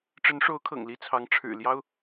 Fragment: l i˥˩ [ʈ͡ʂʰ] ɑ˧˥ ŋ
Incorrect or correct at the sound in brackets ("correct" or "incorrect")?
incorrect